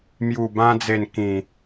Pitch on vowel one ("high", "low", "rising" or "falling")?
low